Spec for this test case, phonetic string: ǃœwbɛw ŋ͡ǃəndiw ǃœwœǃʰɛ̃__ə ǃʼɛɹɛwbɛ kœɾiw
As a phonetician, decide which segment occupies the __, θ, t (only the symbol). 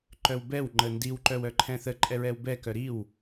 θ